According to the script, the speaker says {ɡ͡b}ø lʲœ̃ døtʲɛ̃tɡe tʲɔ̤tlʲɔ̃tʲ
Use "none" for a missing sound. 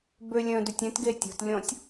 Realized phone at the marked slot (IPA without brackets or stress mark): b